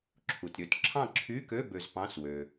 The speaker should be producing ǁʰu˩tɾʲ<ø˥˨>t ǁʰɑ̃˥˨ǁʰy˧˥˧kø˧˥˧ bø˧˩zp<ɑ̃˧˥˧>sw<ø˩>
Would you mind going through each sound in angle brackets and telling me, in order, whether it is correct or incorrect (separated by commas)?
incorrect, correct, correct